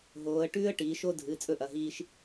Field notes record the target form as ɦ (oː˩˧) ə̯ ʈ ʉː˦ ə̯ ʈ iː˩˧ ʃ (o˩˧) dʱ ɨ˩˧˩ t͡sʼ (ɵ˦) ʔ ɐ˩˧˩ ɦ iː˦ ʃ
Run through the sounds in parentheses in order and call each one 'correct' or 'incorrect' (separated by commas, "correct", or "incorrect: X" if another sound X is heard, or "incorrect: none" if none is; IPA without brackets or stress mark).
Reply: correct, incorrect: o˦, correct